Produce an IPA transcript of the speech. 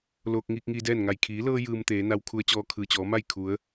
loː˧k̚ ŋiː˧k̚ŋiː˧dɛː˥˨nŋa˧˩j kʰiː˩˧lɤː˧ jɯː˧mt̪eː˩˧na˧w kʰu˧ə̯t͡ɕɔː˧kʰɯː˩t͡ɕɔː˩˧ ma˥˨j kʰu˩˧ə̯

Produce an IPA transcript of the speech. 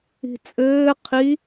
i̤t͡sʼɘː qʰi

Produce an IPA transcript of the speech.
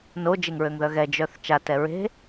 nod͡ʒeŋɹøŋðœ ɣɛd͡ʒœθ t͡ʃatɛ ɹe̤

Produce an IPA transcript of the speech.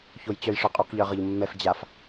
çojt͡ɕœjʂœqʼuq ʎœʁɤʎmːɛf d͡ʑaf

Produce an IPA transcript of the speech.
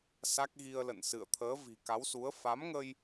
sa˦˥k̚ɣi˧ə̯ lə̰˧˨nsɨ̰˧˨ə̯ t̪ʰəː˨˦vi̤˨˩ka˨˦wsu˨˦ə̯ fa˨˦mŋə˧j

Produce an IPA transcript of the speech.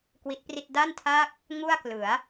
kwi˦˥t̚pri˥˩t̚ da˥˩ntʰaː˥˩k̚ | ŋu˥˩a̯klɯ˩˦a̯

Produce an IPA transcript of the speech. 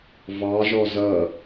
vɑʒɔ zʌ

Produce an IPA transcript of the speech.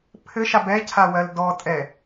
pʰɘʃa bɛcʰawɜl dɔtʼɛ

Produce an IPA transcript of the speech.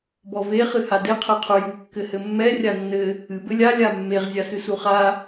bɔve χɨhade qʰɛqʰuju kːɘhɘmːɛ rʲanːɘ | ɨ bɘlʲa lʲamːeʁ zʲasɨsuχa

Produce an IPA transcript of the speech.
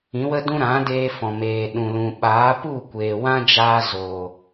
ĩ˨˦wə˦dũ˦ ɾã˨˦deː˧ fɔ̃˨meː˨ɗũ˨lũ˨ ɓaː˨˦pu˦˨kʷeː˨ wã˦d͡ʒaː˧ zoː˨

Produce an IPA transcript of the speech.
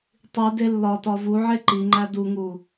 tˤi delːɒtɒ vuʕe ǃiŋ͡ǃæ duŋu

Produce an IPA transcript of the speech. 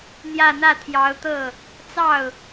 n̪jä˥˧n̪ä˥˩t̪ʰjɑ˧˥ʊ̯ t̪ɤ˥˩ | t͡sɑ˥˩ʊ̯

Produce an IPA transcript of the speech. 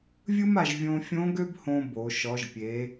vʲɯ˥ma˧ʒ vʲõ˧fʲõ˧˥ ɡø˥bhõ˧ bo˩˧ ʃɔ˩˧ʒpʲe˩˧

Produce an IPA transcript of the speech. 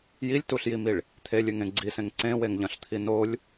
jilʲtuɬjimiɭ | t̪ʰelʲɨŋẽ ɡ͡ǀisẽŋ ǀẽweŋʎɐ̃ɬt̪ʰi nolʲ

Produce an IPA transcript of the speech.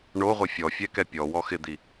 ɳoʁʷɪ fʲɔfʲɛkɛ pʲɔwɔ xɪd̪i

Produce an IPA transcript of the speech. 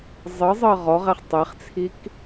zˤɤzˤɤ ʁɔʁɛχ tˤɛχt͡sʰik

